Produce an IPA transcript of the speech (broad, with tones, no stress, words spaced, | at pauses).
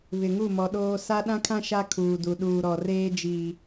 βɪ˨ŋu˦˨mɔ˨ɗoː˦ sa˦ ɗã˦kʰã˦ ʃa˦kʰuː˨du˨ ɗuː˨ɾɔ˨reː˦ d͡ʒiː˦